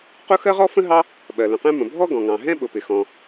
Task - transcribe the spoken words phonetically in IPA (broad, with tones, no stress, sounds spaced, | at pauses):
q ʊ˥ x ɜ˥ ʁ ɔ˥ f ə̃˥ ɦ ɑ˥ | ɓ ɜ˩ l ə̃˩ q ɛ̃˥ m ə̃˩ bʱ ɔ˥ ɡ ɔ̃˩ ŋ ɑ̃˩ ɦ ɛ̃˥ ɓ ʊ˩ p ɪ˩ x ɔ̃˩